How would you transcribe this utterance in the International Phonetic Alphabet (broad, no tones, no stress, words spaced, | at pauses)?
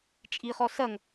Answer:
t͡ʃʼiχɔ sɐŋ